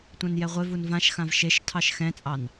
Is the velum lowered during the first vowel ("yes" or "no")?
yes